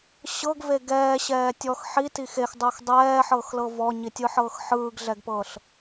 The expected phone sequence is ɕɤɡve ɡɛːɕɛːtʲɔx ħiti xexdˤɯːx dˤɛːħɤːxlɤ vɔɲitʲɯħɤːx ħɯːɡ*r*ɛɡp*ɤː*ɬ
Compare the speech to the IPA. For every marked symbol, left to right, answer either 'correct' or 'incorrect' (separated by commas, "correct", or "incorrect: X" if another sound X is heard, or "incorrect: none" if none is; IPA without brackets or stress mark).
incorrect: ɮ, correct